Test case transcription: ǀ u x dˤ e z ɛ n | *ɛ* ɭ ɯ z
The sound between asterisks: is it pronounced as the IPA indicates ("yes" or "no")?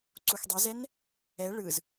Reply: yes